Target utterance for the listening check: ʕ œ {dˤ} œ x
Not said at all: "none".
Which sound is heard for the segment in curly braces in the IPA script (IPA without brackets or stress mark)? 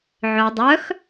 dˤ